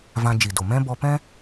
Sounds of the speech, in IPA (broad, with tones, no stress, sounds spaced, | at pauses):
v ã˧ d͡ʒ i˨ d o˨ m ɛ̃˦ b ɔ˧ p ɛ̃˦